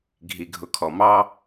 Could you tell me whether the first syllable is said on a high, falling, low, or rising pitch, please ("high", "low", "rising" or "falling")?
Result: low